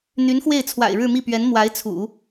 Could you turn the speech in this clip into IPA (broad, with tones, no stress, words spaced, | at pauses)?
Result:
n̪y˧˥nxwe˥˩ɪ̯t͡sʰwa̰˨˩ɪ̯ ɻɻ̩˥˧mi˥˩pɥɛ˧˥n mwa˧˥ɪ̯t͡sʰṵ˨˩˦